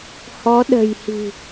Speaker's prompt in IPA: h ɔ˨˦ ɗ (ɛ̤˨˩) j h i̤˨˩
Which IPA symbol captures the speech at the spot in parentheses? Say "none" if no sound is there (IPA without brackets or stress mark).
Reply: ə̤˨˩